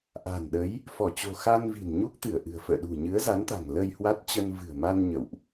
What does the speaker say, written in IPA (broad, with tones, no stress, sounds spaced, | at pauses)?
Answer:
ʔ a̤˨˩ n ɗ ə˨˦ j | f ɔ˧˩ t͡ɕ o̤˨˩ x a˧ n v i̤˨˩ n ɲ u˦˥ k̚ t̪ ɨ˧˩ ə̯ ʔ ɨ̤˨˩ ə̯ f ə̰ː˧˨ ɗ ṳ˨˩ ɲ ɨ˨˦ ə̯ z a˨˦ n t̪ a̤˨˩ ŋ l ə˧ j h w a˦˥ t̚ t͡ɕ ə˧ n v ɨ̤˨˩ ə̯ m a˧ n ɲ ə̰˧˨ w ʔ